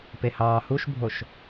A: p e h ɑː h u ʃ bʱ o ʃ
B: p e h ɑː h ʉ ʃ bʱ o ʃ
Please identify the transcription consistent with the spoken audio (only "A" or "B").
A